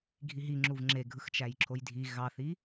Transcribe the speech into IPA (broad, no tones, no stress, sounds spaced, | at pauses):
ɡʱ i ɦ i ŋ͡ǁ u v ŋ͡ǁ e ɡʱ ɯ x t͡ʃ æ j ǁʰ o j dʱ i ɣ ɑ θ i